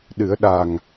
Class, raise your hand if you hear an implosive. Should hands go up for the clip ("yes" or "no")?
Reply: yes